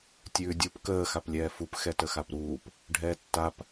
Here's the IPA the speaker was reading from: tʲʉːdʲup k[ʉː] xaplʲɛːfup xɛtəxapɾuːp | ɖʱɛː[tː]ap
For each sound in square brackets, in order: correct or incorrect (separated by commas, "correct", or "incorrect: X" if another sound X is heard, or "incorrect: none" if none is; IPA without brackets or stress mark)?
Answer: incorrect: əː, correct